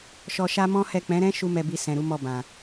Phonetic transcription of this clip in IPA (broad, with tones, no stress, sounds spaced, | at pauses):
ʃ ɔ˧ ʃ a˦ m ɔ̃˦ h ɛ˦˨ k͡p ɛ̃˨˦ ɾ ɛ̃˦ ʃ u˦ m ɛ˧ b i˧ s ɛ̃˨ ɾ u˨˦ m ɔ˦˨ b ã˨